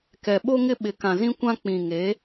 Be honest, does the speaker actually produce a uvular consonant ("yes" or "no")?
no